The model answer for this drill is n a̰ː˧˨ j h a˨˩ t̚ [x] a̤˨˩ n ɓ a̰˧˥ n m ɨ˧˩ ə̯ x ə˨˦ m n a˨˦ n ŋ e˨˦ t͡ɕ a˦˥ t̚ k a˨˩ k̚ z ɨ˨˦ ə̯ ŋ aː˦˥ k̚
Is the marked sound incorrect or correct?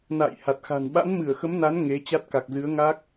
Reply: correct